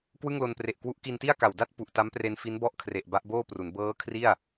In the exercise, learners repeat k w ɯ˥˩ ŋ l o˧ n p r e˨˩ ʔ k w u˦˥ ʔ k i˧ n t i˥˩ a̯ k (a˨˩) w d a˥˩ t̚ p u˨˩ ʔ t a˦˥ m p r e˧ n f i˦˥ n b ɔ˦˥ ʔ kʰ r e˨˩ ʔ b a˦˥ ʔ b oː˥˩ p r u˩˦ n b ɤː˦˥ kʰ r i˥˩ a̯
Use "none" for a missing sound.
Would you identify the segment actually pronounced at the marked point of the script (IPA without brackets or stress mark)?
a˨˩